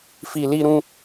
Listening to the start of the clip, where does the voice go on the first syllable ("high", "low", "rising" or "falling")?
low